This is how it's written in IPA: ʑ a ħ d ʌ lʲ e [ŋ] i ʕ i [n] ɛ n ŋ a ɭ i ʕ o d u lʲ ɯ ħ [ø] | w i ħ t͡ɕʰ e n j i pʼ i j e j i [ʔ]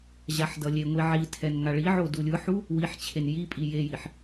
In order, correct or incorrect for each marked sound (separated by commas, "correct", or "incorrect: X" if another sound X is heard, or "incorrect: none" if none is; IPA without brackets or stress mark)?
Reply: incorrect: ŋʷ, incorrect: tʰ, incorrect: u, incorrect: ħ